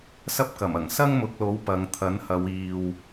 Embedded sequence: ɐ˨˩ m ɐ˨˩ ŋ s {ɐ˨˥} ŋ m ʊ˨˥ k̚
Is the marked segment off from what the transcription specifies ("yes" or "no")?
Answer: yes